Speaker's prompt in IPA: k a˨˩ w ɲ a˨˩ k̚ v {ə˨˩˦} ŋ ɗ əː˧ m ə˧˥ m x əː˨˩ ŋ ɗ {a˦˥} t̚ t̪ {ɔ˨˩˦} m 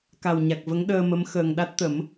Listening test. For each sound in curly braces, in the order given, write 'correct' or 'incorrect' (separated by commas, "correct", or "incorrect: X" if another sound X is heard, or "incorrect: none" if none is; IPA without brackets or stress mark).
incorrect: ə˧˥, correct, incorrect: ə˨˩˦